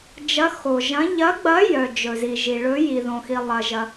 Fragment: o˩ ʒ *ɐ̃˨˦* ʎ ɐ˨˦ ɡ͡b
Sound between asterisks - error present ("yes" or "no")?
no